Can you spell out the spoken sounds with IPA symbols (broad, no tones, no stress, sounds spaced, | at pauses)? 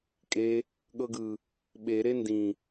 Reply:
kʼ e | ɠ ɤ ɡ ɯ | ɓ e ɾ e n d ĩ